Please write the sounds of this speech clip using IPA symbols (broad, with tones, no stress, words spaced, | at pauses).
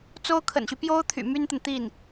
t͡so˥ʊ̯kʰə̰˨˩nɕy˦ pjo˥ʊ̯t̪ʰy̰˨˩ my˥nt̪ə˨nt̪i˥˩n